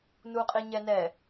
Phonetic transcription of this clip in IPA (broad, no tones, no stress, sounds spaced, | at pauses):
n u qʼ i ɲ ɛ n ɛ